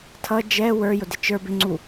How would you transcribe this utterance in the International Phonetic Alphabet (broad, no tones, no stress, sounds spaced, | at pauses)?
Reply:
tʰ ʌ d͡ʒ ɛ w ə˞ j ʊ d ɪ t͡ʃ ə˞ b ɪ ŋ͡ǀ u